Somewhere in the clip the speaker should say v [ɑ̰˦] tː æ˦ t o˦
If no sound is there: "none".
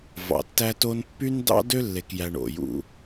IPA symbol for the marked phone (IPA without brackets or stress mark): ɑ̰˨